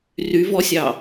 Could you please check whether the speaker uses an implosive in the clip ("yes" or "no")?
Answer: no